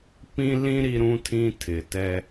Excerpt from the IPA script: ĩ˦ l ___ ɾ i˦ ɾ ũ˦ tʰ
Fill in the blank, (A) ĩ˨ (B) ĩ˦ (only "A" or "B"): B